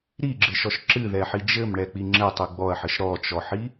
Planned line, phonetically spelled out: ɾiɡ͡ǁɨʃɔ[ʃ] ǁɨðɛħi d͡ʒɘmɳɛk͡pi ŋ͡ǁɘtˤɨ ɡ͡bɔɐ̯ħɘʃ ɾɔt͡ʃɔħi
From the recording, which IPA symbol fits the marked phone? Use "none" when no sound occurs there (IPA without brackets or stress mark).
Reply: ʃ